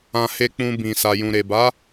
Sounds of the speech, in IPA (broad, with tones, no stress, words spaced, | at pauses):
ã˧ he˧k͡pũ˧ bĩ˨sa˨jũ˨ ɾe˨ba˨˦